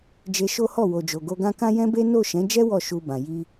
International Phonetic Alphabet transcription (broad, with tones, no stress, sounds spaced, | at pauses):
d͡ʒ e˧ ʃ o˦ h ɔ˦˨ w o˨ d͡ʒ o˨ ɡ o˧ ɡ ã˦ k ã˦ j ɛ̃˦ b e˦ n o˦˨ ʃ ɛ̃˨˦ d͡ʒ ɛ˦ w ɔ˦˨ ʃ u˧ b ã˨ j i˧